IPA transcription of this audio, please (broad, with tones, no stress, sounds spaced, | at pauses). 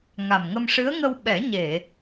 ŋ a˨˩ m ŋ ə˧ m ʂ ɨ˧˥ ə̯ ŋ ə˧ w ɓ ɛ˨˩˦ ɲ e˨˩˨